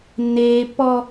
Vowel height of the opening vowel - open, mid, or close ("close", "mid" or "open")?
mid